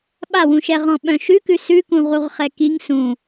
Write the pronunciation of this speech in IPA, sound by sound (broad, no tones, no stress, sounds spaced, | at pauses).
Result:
ɓ a w ũ ʃ ɛ ʁ ɔ̃ ɓ œ̃ ʃ ʉ k ʉ s ʉ k ũ ʁ u ʁ χ ɛ k i ŋ s ũ